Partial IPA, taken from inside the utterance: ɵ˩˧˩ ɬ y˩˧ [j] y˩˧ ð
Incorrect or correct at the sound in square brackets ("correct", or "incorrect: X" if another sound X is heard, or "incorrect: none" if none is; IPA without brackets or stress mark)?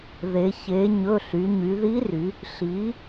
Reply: incorrect: ɲ